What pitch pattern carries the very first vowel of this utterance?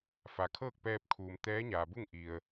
low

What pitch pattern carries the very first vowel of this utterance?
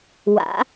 rising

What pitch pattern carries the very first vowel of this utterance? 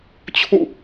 falling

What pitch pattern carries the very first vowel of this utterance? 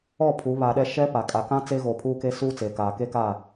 falling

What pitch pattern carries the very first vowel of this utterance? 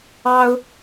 high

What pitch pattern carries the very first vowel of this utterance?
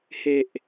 low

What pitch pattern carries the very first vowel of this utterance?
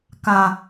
low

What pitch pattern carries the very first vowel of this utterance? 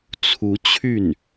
rising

